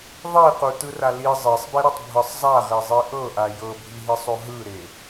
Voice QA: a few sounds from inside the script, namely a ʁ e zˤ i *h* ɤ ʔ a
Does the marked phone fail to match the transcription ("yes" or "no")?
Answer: yes